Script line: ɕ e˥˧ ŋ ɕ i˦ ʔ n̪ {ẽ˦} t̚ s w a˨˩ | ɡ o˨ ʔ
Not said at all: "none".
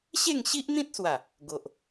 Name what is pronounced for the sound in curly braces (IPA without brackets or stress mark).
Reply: ĩ˦